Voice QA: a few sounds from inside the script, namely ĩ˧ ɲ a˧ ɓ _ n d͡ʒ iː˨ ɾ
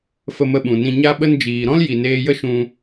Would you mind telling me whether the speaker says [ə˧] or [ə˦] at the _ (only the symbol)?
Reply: ə˧